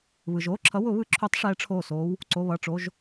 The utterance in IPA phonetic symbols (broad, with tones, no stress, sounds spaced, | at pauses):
β ɯ˩ ʒ oː˩˧˩ ǁʰ ʌ˨˦ w ʊ˨˩˦ β ɯ˨˦ ǁʰ u˨˩˦ tˤ ʂ ɛː˨˦ ʈ͡ʂʰ oː˧˩ s oː˨˦ w | ǀ o˩˧˩ β ʌ˩˧˩ ʈ͡ʂ o˩˧˩ ʒ